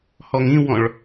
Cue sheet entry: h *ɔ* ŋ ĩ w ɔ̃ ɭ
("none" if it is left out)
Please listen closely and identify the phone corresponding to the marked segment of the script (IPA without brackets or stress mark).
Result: ɔ